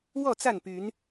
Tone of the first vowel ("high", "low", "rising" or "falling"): falling